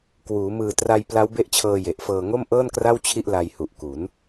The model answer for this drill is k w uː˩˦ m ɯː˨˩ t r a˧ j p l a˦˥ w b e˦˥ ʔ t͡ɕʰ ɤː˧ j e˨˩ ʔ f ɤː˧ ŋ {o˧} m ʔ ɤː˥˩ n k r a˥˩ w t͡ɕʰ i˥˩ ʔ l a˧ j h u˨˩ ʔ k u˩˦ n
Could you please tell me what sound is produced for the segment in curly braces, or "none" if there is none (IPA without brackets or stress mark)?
o˥˩